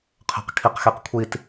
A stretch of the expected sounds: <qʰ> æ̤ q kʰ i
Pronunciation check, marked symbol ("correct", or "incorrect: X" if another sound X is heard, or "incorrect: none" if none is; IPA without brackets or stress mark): correct